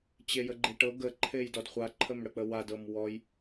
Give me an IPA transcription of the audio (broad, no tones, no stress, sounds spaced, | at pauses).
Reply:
t͡ɕ e j ə ɡ͡ǃ e ʈ ɤ ɡ ə ǃʰ e j d ɔ d χʷ a ǃʰ ə m ɽ ə k͡p ə w a d ɤ m w ɔ j